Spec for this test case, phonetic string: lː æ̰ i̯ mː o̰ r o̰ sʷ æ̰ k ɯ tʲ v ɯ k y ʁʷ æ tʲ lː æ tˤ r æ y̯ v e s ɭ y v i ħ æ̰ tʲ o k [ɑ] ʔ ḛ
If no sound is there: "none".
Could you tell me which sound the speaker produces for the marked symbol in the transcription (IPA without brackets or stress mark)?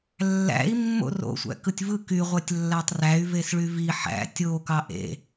ɑ